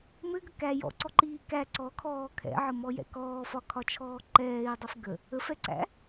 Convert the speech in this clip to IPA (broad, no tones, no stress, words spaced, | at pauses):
mɘɡə kæ jɔ̰ǀɔǃiː kæ ǀɔkʰɔː kʰɛ̰ʕəmɔjɛ̰ kɔːfɒkʰɒt͡ʃʰɔː ǃɛːi̯dˤɘf ɡə | əfɛǀæ̰